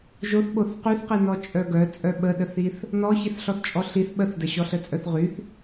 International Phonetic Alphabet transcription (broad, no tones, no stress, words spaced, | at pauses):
ʒoθɓoθ qyθqinɔ t͡ʃʼœɡœ t͡sʼœɓəɗəθiθ | nɔ çiθɬɔθt͡ʃʼɔɬiθ ɓəθdəɕɔɬə t͡sʼœθʁyθ